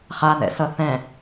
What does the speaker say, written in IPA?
χ a n ɛ̰ s ʌ θ ɛ̃

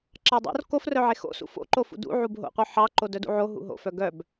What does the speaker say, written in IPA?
ǁ ɑ dˤ o̰ r k o f r œ ʕ e x o̰ s ṵ f o̰ ǃ o f ṵ d ṵ ʕ u b ɦ o̰ qʷ œ ħ ɑ ǃ o d œ d ṵ ʕ o ɦ ṵ ɦ o̰ f œ ɡ œ b

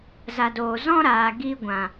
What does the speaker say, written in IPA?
z a˨ d oː˨ z ɔ̃˦ ɾ aː˨ ɡ i˧ ɡʷ ã˨

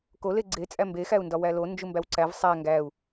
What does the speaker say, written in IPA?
k o l e ɡ͡ǀ e t͡sʼ æ m b e x æ u̯ n d ɒ w æ l o n d͡ʒ u m b æ w ǀ æ v sˤ æ ŋ ɡ æ u̯

